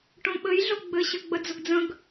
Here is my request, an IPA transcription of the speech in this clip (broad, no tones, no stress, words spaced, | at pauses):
ʈõɓɘjɮo ɡ͡bɘɕɘ ɡ͡bəd͡zʊɡd͡zə̃ɡ